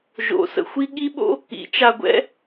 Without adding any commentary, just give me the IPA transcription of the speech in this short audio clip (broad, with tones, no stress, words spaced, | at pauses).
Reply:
ʒo̰˩˥sə̰˧xʷi˥ ɠi˥ɓo̰˥ | ḭ˩˥t͡ʃa˧ɡʷɛ̰˥